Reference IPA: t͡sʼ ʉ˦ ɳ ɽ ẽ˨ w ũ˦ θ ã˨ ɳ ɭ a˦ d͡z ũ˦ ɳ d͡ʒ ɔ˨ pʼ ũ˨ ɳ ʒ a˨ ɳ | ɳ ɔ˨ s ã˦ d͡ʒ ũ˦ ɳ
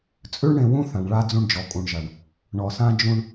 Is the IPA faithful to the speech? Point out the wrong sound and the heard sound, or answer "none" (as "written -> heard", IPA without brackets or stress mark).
pʼ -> kʼ